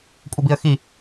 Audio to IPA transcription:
kʷʼ ə b i ə̯ x i

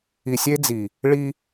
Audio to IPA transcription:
i˨ sʲ e˦ d͡z i˨ | ɭ i˦

